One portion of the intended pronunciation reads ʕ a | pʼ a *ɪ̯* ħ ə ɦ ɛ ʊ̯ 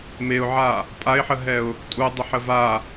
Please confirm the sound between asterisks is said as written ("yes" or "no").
yes